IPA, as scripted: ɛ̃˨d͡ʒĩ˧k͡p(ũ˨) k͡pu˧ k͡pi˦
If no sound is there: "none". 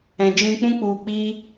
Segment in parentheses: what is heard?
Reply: ũ˦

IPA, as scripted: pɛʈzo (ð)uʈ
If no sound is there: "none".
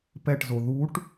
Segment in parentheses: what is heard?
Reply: ð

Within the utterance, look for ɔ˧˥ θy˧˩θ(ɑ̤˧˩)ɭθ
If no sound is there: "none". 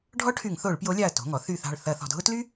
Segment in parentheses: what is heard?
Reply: ɑ̤˧˩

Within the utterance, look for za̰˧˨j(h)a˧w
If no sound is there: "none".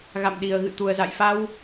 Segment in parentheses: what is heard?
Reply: f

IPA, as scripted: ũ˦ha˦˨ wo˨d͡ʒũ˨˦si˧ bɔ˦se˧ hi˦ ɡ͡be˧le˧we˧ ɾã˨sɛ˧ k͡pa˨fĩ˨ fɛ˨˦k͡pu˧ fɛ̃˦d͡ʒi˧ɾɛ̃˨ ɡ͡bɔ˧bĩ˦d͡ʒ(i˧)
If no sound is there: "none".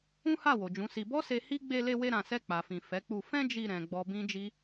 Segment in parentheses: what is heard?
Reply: i˦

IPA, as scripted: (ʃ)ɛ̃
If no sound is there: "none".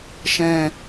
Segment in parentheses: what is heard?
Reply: ʃ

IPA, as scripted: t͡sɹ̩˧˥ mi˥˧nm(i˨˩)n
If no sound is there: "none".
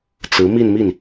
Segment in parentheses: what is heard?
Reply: i˥˩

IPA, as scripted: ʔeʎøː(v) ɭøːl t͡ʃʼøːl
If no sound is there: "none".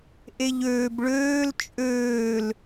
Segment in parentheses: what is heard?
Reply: b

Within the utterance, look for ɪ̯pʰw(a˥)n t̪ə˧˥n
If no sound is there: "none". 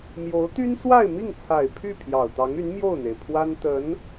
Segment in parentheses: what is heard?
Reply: a˥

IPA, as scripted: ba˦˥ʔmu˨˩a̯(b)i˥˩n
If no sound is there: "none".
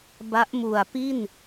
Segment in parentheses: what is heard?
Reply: p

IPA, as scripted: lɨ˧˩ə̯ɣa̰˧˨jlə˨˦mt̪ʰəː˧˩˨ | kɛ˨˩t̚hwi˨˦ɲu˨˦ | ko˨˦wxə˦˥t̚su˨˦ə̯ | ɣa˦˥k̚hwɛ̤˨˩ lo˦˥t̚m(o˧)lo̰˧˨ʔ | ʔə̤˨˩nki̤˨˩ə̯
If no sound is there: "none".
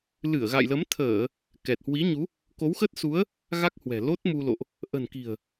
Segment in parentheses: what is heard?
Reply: u˧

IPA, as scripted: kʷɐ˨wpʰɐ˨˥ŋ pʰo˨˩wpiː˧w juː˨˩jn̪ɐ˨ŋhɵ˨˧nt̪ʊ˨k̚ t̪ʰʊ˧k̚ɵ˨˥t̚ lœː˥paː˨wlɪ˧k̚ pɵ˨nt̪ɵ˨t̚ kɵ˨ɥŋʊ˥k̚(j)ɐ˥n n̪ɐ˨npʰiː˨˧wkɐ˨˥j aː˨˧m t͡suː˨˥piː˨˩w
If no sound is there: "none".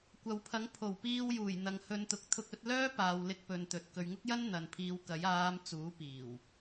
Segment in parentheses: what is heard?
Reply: j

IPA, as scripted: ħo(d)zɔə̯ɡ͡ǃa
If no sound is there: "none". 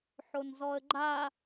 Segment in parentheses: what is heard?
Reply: n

